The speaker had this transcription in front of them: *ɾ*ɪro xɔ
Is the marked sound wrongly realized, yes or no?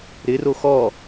no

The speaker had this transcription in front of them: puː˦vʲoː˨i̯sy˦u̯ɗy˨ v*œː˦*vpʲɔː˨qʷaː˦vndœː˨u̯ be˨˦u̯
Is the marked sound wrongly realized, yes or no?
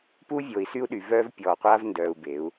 no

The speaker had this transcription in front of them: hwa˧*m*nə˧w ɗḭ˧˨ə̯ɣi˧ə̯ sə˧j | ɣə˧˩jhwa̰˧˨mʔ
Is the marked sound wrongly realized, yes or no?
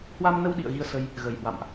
no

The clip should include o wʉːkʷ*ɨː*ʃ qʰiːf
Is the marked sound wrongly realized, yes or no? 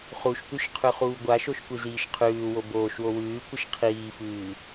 yes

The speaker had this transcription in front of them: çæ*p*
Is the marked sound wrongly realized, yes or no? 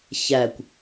yes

